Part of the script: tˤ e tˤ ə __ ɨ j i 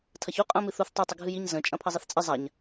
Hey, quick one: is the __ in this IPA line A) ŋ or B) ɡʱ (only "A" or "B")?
B